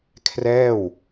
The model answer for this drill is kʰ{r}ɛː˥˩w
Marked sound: correct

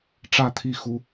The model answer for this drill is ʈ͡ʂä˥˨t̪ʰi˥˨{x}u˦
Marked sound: correct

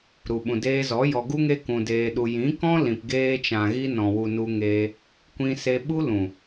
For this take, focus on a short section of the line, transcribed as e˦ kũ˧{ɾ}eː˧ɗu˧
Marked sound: incorrect: d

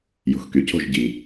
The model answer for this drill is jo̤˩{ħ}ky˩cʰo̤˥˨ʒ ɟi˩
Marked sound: incorrect: x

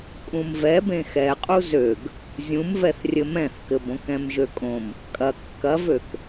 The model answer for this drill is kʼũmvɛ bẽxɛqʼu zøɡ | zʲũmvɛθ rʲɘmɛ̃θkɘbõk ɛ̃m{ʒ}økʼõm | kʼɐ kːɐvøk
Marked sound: correct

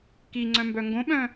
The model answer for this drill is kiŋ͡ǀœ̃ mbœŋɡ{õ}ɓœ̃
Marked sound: correct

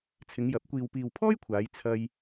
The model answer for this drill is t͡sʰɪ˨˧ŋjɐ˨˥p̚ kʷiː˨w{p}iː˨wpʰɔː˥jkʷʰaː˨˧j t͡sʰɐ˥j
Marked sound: correct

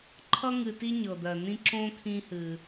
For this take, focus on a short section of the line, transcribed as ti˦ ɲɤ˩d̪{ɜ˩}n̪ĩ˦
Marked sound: correct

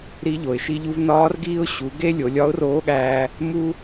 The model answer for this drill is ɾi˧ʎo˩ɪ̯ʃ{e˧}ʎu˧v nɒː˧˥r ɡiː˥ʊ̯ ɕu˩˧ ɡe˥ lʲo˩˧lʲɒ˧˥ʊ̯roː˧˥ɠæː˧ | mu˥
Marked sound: incorrect: i˧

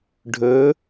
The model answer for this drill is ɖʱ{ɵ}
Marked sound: correct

